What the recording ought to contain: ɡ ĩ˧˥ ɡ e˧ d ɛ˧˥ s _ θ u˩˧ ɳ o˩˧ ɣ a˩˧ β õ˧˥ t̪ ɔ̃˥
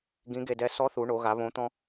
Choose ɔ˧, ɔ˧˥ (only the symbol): ɔ˧˥